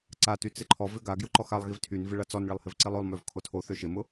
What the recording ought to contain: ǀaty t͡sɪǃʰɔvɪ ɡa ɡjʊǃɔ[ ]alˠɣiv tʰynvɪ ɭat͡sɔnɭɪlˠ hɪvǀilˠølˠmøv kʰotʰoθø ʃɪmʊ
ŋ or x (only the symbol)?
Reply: x